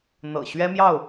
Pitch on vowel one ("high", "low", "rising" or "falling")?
low